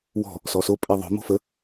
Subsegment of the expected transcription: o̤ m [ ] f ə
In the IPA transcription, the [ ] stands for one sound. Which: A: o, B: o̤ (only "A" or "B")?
B